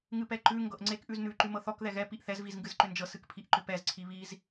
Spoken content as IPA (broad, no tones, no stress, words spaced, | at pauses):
ŋɨpɛǃʉ ŋɡɤʔŋ͡ǀek ʔʉznʉ ǃʉmɤθɔk ðɛɣɛ piʔθɛz vizŋɡɨzǃʏnd͡ʒɤ sɨkpʰiʔǃʏpɛz ǀʰiβiz